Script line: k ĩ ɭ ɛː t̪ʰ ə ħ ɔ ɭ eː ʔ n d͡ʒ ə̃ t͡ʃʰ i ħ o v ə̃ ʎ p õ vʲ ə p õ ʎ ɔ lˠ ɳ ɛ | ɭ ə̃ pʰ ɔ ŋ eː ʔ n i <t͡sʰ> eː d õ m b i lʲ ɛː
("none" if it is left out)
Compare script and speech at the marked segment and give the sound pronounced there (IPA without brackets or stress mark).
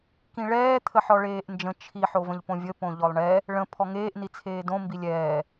t͡sʰ